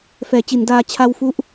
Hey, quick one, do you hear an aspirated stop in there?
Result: yes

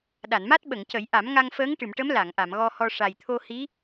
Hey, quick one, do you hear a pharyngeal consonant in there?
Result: no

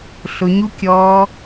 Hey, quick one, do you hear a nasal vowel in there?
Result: no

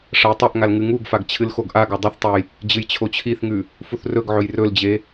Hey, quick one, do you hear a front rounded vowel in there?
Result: no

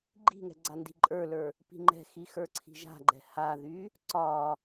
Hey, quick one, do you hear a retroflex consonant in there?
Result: no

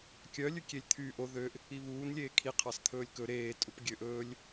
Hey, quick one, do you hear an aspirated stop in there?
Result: yes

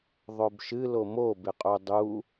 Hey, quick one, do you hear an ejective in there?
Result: yes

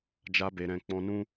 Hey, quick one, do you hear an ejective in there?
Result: no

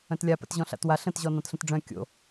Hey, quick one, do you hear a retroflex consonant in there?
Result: yes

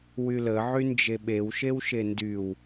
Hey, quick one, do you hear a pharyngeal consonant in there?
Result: yes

